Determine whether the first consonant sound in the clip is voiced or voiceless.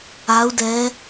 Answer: voiced